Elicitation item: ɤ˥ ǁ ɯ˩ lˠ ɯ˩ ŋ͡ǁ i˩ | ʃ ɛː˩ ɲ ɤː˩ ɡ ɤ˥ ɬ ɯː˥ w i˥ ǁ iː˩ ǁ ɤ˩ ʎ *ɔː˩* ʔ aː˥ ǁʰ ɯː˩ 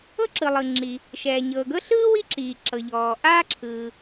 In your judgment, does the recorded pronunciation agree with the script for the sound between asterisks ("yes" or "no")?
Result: yes